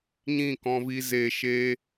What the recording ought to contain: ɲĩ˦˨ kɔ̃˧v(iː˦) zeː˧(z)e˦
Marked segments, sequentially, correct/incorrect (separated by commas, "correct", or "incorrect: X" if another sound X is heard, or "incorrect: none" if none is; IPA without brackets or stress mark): incorrect: iː˧, incorrect: ʃ